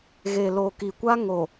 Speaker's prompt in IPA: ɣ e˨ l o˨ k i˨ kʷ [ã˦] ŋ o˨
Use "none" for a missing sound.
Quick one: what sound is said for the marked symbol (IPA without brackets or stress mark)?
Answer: a˦